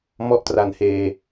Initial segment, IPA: m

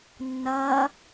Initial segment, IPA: nː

